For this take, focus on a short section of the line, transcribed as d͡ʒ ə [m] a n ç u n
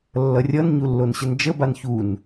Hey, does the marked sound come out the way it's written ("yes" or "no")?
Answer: no